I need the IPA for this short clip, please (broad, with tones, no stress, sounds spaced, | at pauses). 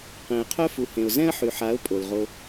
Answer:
q ẽ˨ ə̯ qʰ œ˦ f u˨ h ẽ˨ ʊ̯ z ɛ̃˦ ə̯ ħ y˨ ħ a˨˦ ʊ̯ pʼ o˨ l ʁ o˧